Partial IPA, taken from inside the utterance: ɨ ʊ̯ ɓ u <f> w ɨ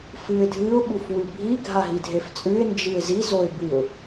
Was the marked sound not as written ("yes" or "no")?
no